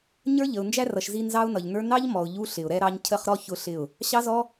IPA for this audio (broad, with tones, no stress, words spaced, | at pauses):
ɲə˞˦ ʎə˨ʊ̯ nd͡ʒæ˦rʌ˨ʃzi˧ nzɑ˦ʊ̯nʌ˨ʎnə˞˦ nɑ˦ʎmɔ˨ʊ̯ ʎu˦ɬɪ˨ʊ̯ɾɛ˦ ɾɑ˦ɲ cʰə˦˨χɾɔ˦çʊ˧ ɬɪ˦˨ʊ̯ | ɕɑ˦zɔ˦